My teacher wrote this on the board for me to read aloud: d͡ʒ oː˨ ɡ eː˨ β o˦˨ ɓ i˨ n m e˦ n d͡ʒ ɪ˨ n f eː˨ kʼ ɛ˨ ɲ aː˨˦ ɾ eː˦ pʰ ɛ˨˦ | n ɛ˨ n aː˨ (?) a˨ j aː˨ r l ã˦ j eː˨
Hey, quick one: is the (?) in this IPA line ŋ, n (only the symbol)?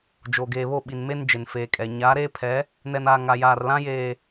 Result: ŋ